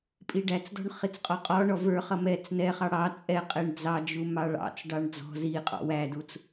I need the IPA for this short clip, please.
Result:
pʼ i ɖ æ t͡s d ɔ̤ ɳ χ i t͡s qʼ ɔ qʼ ɔ ɳ ɔ v ə˞ χ ʌ m ɛ t͡s n ɛ χ ɑ ɽ ɑ t͡sʼ ɛ qʼ ɛ ɳ d͡z ɑ d͡ʒ u m ɑ ɭ ɑ̰ t͡s ɖ ɑ ɳ d͡z ɔ̤ z i qʼ ɔ̰ w æ d u t͡s

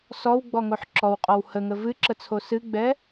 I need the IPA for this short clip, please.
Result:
s ɔ w ɡ͡b ɔ ŋ o ħ ǁ ɔ w qʼ ɔ w h ə ŋ ə v ɨ ǁ ə t͡sʰ o s ɨ ɡ͡b ɛ

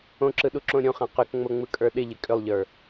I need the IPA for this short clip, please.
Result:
õ ǁ ɯ ɗ u ǁ õ ɾʲ õ χ ã q ʏ k ŋ͡m o ŋ͡m ɯ kʼ ə˞ ɗ ɪ ʎ ɪ kʼ ʏ lˠ ʎ ə˞

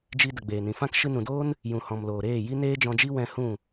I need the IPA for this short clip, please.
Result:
d͡ʒ i˧ d ə˨ ɡ͡b eː˨ n ĩ˨ f ã˦ k ʃ ɨ˧ n ũ˨ d oː˦ n | j ũ˨ h ɔ̃˨ m l oː˨ ɾ eː˦˨ j i˦ n eː˦ d͡ʒ ɔ̃˧ d͡ʒ i˦ w ɛ̃˦ h ũ˦˨

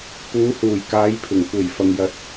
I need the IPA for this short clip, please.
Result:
p uː˨˧ h uː˨˩ j k aː˨˧ j pʰ ɪ˨˩ ŋ kʷ e˨˩ j f ɐ˨ ŋ j ɐ˧ t̚

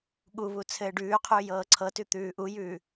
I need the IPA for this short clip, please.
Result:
ɠ u β u t͡sʰ ɘː ɖ ʉː qʰ ʉː j ɤː ǀʰ ɤ t ʉ t̪ ʉː ʔ u j ʉː

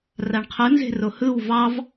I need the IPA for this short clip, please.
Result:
r a ɳ qʰ ɯ n z e̤ r o h ɯ w v ɑ v

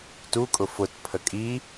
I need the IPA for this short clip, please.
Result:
t u kʼ ʊ f ʊ t pʰ ə kʼ i

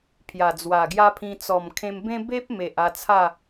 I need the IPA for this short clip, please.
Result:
pʰ j a˨˩ d͡z w a˨˩ ɡ j a˦ pʰ ĩ˧ t͡s ɔ˨˩ m kʰ ẽ˧ m b ẽ˦ b e˦ p̚ m e˨ ʔ a˧ t͡sʰ a˥˧

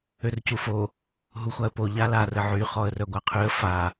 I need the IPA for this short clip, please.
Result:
ø r c u f o | ɦ u xʷ a ə̯ p o ʎ a l a r ə ʕ y χ ɔ ə̯ r œ ɡʷ a qʰ y ə̯ f a

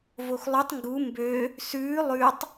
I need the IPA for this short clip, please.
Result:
v o x lˠ ʉ tˤ ŋ ɡ u m b ø | s ʉː lˠ ʉ tˤ

